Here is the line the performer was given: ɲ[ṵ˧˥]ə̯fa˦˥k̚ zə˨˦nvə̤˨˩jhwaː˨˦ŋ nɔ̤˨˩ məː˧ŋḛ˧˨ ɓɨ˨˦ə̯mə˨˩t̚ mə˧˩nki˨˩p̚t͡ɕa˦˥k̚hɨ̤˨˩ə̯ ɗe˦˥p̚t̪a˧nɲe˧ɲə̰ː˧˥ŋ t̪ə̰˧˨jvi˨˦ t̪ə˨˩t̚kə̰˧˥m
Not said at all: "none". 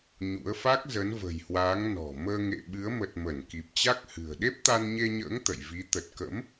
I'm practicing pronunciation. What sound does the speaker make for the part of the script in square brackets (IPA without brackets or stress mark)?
ṵ˧˥